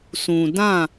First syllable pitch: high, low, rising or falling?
low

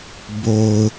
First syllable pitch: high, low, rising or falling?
low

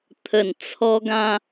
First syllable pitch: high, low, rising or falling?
low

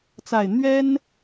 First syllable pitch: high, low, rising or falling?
low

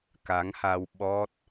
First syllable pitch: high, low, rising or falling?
rising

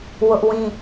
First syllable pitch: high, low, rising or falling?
high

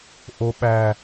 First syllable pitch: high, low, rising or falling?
high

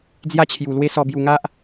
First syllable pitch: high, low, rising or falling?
high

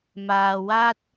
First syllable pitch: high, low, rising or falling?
low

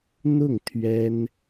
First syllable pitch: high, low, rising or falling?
falling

